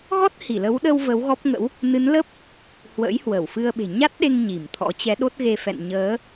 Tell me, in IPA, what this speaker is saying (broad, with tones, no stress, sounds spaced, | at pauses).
ɣ ɔ˦˥ t̚ h i˧˩ l ə˨˦ w ɗ ə˧ w v ə˨˦ w ɣ ɔ˦˥ p̚ ŋ ə̰˧˥ w | n ɨ˨˦ n l ə˦˥ p̚ | h w ə̰ː˧˥ j h w ə˧˩ w f ɨ˧ ə̯ ɓ e̤˨˩ ɲ a˦˥ t̚ ɗ e˧ ŋ ɲ i˧˩ m t̪ʰ ɔ̰˧˥ t͡ɕ ɛ˨˦ ɗ o˦˥ t̚ ɣ e˧ f ɛ̰˧˨ n ɲ əː˨˦